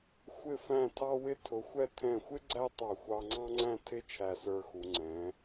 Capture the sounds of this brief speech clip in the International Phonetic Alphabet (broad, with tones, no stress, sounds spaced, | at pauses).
xʷ ɪ˧˩ f æ̃˧˩ tʰ ɑ˧ w ɪ˧ tʰ ʊ˩˧ xʷ ɛ˧ tʰ ɛ̃˧˩ xʷ ɪ˥ ɡ͡ǀ æ˥ tˤ ɑ˧˩ xʷ ɑ˧ ŋ͡ǀ ɑ̃˥ ŋ͡ǀ æ̃˥˧ tʰ ɪ˥˧ t͡ʃʰ æ˧˩ s ə˞˧ x u˩˧ ŋ͡ǀ ɛ̃˩˧